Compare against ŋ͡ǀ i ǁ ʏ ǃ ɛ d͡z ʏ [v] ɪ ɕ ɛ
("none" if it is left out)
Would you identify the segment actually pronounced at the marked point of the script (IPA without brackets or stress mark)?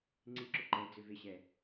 v